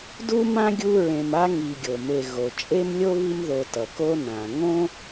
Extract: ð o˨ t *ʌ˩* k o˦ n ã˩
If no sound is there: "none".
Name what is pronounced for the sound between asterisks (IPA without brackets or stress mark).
ʌ˩